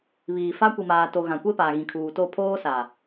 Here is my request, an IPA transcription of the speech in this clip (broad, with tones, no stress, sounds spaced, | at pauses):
β iː˨ f a˦ kʷ i˨ m aː˨ t o˨ ɣ ã˨ kʷ e˦ p aː˨ ɣ ĩ˨ kʰ uː˨ t o˦˨ pʰ oː˦ s a˨